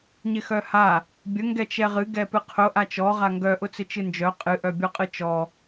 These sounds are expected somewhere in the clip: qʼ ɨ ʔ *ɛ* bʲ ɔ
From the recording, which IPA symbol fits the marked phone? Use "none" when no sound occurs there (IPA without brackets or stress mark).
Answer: œ